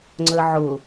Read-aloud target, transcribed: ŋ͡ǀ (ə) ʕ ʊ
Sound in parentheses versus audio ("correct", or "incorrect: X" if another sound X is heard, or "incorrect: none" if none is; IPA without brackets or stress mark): correct